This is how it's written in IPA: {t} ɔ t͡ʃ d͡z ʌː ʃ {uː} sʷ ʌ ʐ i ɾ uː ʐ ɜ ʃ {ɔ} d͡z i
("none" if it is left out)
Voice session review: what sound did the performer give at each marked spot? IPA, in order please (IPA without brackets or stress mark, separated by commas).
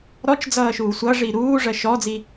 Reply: ɾ, uː, ɔ